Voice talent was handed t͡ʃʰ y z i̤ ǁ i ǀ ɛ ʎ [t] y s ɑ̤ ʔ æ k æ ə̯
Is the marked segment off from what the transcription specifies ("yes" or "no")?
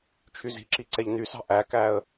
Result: yes